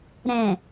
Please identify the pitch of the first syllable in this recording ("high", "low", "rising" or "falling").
low